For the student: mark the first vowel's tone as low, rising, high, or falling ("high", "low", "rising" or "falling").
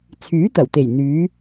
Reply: rising